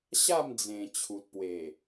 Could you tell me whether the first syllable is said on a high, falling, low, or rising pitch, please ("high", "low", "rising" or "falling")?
falling